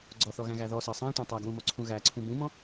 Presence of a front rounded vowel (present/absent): absent